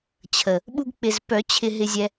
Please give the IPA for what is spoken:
t͡ɕʰə˨˩ | ɓu˧ɡk͡pɪ˨˩zpœ˨˩˦ t͡ɕʰɪ˧ɦɪ˧zʲɛ˧

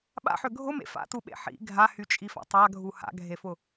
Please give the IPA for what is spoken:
ɓa̰ħø ɡʱʊmḛ fa̰tuɓḛ ħḭ ɡʱahyt͡ʃʼifa̰ tˤaɡʱu ha̰ɡʱefʊ

